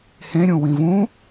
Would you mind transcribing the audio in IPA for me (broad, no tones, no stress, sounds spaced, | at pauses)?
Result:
h ẽ ɾʲ ũ w ĩ v ũ